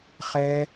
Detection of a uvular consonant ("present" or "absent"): present